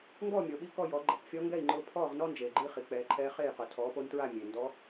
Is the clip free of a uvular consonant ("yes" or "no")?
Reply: no